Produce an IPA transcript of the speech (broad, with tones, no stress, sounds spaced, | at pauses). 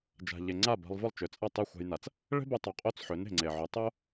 d͡ʒ a̤˩ ʎ e˩ ŋ͡ǀ a˥˩ b a̤˧ lˠ v ʊ˥˩ lˠ t͡ʃ ø˩ t͡sʼ ɐ˥˩ tˤ e˥˩ xʷ a̤˧ j n a˩ t͡s | ɭ e̤˥ b o˧ tˤ ø˩˥ qʼ o˥˩ t͡s ħ ø˩˥ n e̤˩ ŋ͡ǀ e˩ ʕ ø˩˥ tˤ o˥